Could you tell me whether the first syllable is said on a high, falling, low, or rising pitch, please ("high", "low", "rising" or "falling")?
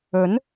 rising